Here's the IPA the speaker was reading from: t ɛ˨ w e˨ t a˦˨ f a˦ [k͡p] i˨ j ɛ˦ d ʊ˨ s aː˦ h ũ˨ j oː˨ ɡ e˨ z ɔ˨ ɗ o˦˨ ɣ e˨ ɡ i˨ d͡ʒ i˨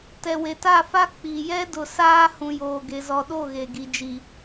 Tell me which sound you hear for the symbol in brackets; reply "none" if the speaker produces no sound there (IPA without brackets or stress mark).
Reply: k͡p